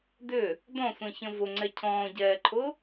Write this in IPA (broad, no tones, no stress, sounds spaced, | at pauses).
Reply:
d ʏ | d ɔ̃ sʷ ɛ̃ ç ə̃ v ʊ ŋ͡ǀ ɛ cʰ ɔ̃ː ɟ ɛː ǃʰ ʊ